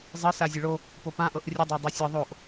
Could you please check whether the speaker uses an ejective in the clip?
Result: no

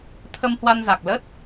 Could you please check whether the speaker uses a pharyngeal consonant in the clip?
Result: no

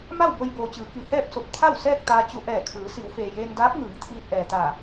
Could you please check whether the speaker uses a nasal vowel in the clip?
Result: no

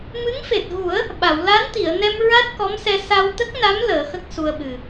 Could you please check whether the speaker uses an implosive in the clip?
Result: yes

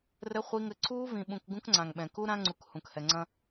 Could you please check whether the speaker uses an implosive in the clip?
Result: yes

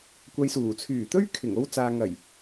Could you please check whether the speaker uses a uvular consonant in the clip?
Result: no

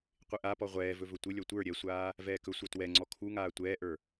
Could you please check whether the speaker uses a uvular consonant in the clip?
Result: yes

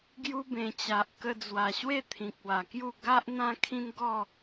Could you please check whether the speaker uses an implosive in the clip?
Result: no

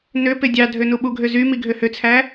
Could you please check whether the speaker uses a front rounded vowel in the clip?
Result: yes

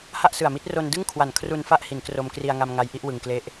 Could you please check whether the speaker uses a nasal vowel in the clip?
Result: no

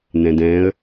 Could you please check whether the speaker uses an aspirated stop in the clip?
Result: no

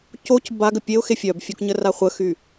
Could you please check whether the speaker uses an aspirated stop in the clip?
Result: no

